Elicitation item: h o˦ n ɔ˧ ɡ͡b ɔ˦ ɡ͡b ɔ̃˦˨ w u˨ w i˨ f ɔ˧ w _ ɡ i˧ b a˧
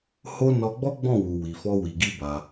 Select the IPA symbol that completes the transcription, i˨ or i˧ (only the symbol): i˨